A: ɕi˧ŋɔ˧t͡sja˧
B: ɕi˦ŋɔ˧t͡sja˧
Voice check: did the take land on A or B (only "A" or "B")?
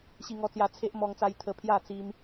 A